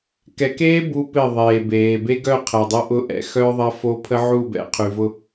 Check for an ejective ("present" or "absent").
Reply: absent